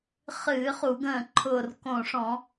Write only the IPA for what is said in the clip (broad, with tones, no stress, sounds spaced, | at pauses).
χ ɨː˧˩˧ χ u˧˩˧ ɡ ə̃ː˧˩ ǃʰ ʊː˧˩ r k õ˧˩ ʂ ɔ̃˧˩˧